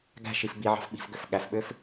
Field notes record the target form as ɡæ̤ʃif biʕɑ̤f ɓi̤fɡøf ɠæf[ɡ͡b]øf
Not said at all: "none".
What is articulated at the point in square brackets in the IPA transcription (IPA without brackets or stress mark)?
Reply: ɓ